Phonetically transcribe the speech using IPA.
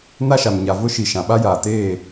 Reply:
na˦ʃa˨m ɲa˨ vʊ˦ʃi˨ ʃã˨ɓa˦ jaː˨teː˦˨

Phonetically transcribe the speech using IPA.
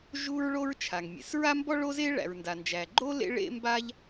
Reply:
ʒu˥ɹɭo˥ɹ t͡ʃʰa˩ŋ mʲḛ˩sɹa˥mbɔ˥ ɭo˦ze˦ɭæ̰˩ɹ nda˩nd͡ʒæ˩ ɡ͡ǃo˥ lḛ˥ɭḛ˥ mba˦ʎ

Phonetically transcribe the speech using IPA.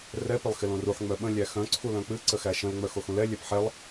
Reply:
rɛ pɪlˠxɪlõruħ ŋ͡mœɓə̃ lʲæxœ̃ ǀʰulœ̃k͡pɨ ǀəxæʃə̃l ŋ͡mœxoxũlɛ lʲɛpħɛlˠ

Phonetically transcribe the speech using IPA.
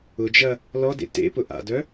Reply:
ʊd͡ʒɐ | lɔdḛ tḛ pʊʔa̰dœ

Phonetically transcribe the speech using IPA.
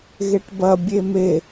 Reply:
ɣeʈbɐ bʲeme

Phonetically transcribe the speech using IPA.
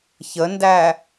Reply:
çəndæ

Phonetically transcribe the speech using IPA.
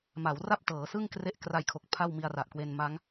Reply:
ma˩˦w ra˥˩p̚tɤː˩˦sɯ˥˩ŋkre˦˥ʔ kra˧jkʰo˨˩k̚ pʰa˥˩wmi˧a̯ra˨˩ʔkwe˧n ma˦˥ŋ

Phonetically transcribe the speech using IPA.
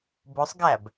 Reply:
bosˤɡæb

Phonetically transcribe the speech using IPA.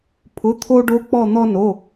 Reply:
pʰʊ˧˥˧t̪ʰo˥ ɖo˧˥k͡pɔ˦˨ n̪ɔ˥no˧˥˧

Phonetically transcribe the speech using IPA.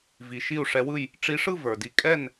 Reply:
vi˨ ʃi˥˨u̯ʂɛ˧˥wɯ˥˨j | ʈ͡ʂi˧˥ ʂɯ˥˨ və˞˨di˧˥ kʼɛ˥˨n

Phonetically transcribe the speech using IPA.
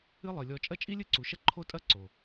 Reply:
ɨ˦lˠɨ˨lʲɔ˧ t͡ʃʼɐ˦t͡ʃʼi˦lʲɨ˦ ǀu˨ ʃɐ˦ ǃʰo˦tʼɐ˦ ǀo˨

